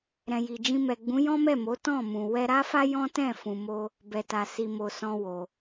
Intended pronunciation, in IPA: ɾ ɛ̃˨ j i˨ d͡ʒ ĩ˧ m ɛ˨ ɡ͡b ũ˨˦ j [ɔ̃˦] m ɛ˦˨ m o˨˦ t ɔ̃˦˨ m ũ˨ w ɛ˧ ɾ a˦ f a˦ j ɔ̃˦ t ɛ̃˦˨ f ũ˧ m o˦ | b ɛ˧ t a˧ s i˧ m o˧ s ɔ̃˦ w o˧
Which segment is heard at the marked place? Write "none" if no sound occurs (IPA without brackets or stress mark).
ɔ̃˦